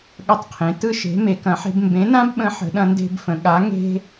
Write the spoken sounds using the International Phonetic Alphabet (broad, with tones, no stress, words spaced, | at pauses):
ɠɐ˦tˤqʰẽ˨˥ tɯ˦ʃe̤˨˥ me˨˥kɐ̃˨˥ħe̤˦b mbẽ˨˥nã˦bɓə̃˨˥ ħə̤˨˥ɗɐ̃˦nde̤˦bfə̃˨˥ ɠa˨˥ ŋe̤˦